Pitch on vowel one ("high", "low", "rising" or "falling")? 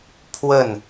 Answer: falling